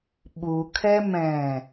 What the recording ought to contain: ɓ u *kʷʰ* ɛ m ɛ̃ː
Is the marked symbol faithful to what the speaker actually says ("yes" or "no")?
no